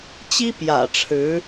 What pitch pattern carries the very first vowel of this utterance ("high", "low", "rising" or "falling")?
high